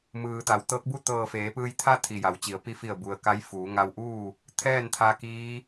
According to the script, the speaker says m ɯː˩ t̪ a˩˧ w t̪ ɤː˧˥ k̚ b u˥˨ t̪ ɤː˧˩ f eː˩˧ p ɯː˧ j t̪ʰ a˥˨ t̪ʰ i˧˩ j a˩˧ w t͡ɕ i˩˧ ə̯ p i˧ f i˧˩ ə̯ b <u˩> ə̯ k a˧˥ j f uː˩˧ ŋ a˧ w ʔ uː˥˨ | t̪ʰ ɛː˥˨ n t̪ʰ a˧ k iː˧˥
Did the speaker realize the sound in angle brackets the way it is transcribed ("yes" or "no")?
yes